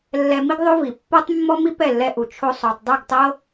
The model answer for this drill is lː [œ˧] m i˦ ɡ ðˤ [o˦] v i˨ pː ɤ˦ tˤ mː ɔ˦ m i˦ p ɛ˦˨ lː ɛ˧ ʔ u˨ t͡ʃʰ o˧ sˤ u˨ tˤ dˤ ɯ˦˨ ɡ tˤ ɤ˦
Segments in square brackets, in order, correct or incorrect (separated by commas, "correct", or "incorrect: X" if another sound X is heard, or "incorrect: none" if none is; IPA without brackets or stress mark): incorrect: ɛ˧, correct